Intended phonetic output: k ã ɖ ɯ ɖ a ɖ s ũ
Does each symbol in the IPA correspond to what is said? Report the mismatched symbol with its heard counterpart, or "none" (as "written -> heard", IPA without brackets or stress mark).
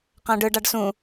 k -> q